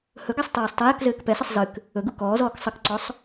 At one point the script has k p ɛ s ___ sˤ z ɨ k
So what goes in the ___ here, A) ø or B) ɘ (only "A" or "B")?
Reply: B